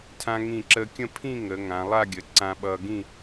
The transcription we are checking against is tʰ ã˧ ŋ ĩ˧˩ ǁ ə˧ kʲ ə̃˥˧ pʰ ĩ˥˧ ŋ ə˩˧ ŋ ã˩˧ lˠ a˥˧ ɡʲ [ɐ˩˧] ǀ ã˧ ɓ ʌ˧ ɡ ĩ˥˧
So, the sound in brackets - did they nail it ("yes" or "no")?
no